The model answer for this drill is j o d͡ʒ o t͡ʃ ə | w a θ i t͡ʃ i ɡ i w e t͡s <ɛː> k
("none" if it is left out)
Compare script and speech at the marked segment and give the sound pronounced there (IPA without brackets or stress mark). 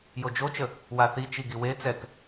ɛ